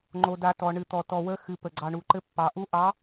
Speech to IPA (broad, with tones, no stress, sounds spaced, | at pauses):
ŋ͡ǃ o˩ d a˩ t ɔ˩ ɳ ɨ˩ t̪ ɔ˩ t ɔ˩ w ə˨˦ x ɨ˩ p ə˩ ɡ͡ǀ ɑ˩ ɳ u˩ ǃ ɘ˨˦ pː ɑ˩ ʔ u˨˦ ʔ ɑ˨˦